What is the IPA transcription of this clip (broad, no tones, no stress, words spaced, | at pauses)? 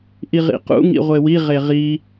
ʔiʁḭqṵ ŋḭʁʷewi ʁeʁi